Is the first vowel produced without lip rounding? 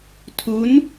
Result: no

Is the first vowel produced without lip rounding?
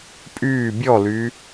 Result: no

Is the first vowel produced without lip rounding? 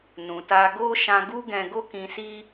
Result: no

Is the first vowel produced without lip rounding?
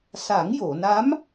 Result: yes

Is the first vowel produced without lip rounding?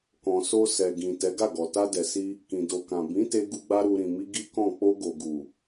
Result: no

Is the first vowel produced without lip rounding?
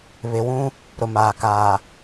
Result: yes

